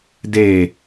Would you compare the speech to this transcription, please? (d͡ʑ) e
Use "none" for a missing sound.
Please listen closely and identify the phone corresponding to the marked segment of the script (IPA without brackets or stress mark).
d